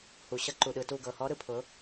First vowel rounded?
yes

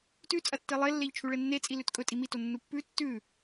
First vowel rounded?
yes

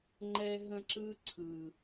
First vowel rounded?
no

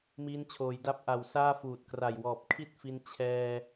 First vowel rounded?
no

